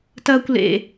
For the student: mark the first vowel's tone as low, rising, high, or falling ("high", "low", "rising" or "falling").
high